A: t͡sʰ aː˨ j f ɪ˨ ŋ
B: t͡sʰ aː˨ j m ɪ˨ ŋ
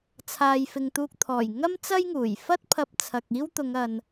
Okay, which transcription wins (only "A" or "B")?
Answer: A